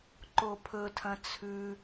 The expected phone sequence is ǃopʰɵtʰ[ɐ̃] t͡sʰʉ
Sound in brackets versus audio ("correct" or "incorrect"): correct